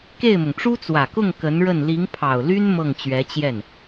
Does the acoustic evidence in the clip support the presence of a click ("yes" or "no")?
no